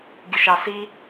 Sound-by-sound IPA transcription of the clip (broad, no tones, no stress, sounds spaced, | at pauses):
ɡʲ ə ʃ ɑ s i